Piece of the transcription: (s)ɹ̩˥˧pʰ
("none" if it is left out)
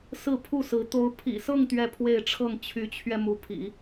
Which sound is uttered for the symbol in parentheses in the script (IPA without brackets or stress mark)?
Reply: s